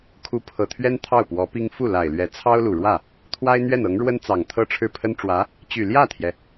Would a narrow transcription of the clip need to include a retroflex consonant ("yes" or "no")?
yes